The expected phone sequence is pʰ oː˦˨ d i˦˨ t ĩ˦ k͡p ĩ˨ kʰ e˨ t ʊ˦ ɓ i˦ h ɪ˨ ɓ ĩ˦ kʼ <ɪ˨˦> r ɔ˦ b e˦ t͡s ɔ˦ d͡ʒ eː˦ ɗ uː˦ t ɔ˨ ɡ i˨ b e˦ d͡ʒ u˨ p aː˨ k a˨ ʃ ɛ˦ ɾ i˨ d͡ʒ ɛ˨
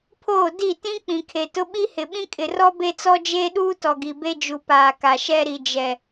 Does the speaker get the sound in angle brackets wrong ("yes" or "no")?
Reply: yes